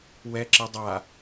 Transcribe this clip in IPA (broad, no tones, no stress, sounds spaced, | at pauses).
w ɛ ǁ e dˤ a